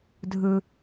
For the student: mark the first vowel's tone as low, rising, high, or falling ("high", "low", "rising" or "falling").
low